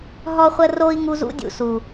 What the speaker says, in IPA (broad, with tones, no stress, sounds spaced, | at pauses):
ɦ ɔ˦ χʷ ə˦ r o˦ i̯ ŋ u˧ z ṵ˧ dʲ ṵ˨ s u˨